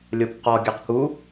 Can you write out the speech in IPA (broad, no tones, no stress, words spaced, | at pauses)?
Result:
lʲopqɔ ɡʲɜqku